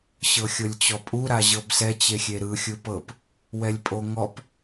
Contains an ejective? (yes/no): yes